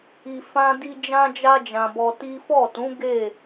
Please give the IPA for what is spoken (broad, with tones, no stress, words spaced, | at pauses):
i˨ fã˧ di˧d͡ʒã˧ d͡ʒa˧d͡ʒã˨ bɔ˧ti˦ fɔ˦˨tũ˨˦ ɡe˦˨